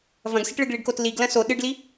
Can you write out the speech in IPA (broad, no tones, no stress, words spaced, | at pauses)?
vɐ̃ɡsiʈɭɨɡ ɭiɖkotliɡlɐ̃ so ɗɨɖli